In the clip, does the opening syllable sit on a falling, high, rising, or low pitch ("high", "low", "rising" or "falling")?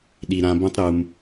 low